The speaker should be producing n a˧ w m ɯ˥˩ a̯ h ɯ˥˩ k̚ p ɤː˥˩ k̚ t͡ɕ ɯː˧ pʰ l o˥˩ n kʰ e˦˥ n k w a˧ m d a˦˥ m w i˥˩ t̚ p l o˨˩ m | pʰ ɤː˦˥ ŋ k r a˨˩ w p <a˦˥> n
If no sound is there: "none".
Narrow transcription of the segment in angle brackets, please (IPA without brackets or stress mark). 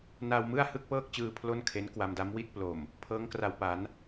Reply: a˩˦